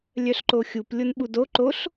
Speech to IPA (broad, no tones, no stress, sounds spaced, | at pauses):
lʲ œ ɬ ǃ o xʲ u p lʲ o n ɓ u d o ǃ o ɬ